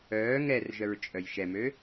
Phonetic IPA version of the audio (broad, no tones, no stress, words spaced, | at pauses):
œː ŋɛrʒœɹ t͡ʃʼœjʃɛmø